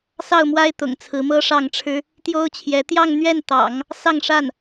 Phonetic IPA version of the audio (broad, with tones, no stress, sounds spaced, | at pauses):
s ɑ˥˩ ʊ̯ m w a˥ ɪ̯ t̪ ʊ̰˨˩ ŋ t͡sʰ ɹ̩˧˥ m ɤ˥ ʂ ɑ˥˩ ŋ ʈ͡ʂʰ ɻ̩˥ | t̪ j o˥ ʊ̯ t͡ɕʰ j ɛ˧˥ t̪ j ɑ˥˧ ŋ n̪ ɥ ɛ˥˩ n t̪ ɑ̰˨˩˦ ŋ | s ɑ˥˧ ŋ ʂ a˥˩ n